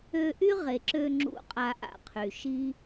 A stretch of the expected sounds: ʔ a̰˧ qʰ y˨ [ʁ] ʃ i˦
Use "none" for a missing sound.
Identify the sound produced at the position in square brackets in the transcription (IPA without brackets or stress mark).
none